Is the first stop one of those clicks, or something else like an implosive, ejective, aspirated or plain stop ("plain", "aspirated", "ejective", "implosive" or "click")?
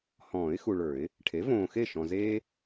aspirated